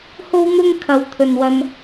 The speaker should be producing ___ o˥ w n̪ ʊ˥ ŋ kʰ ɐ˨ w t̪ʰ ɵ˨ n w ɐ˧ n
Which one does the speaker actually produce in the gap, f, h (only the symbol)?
h